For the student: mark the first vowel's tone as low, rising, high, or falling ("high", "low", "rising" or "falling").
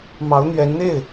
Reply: rising